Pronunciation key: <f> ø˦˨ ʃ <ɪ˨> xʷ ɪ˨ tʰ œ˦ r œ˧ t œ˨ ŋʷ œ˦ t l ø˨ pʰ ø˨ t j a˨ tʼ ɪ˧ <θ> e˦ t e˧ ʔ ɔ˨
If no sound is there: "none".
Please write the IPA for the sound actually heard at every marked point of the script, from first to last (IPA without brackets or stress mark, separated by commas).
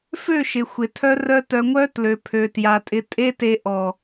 f, ɪ˨, tʼ